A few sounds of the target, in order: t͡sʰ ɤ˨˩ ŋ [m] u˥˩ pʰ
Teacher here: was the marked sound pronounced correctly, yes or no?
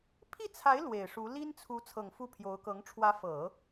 no